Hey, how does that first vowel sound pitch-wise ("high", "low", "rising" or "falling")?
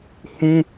high